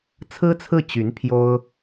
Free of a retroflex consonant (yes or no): yes